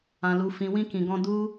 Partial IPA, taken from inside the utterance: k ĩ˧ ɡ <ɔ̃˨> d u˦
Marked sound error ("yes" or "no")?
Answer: yes